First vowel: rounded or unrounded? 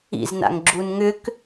unrounded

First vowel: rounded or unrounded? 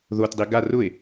rounded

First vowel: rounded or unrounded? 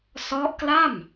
rounded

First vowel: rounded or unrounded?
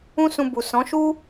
rounded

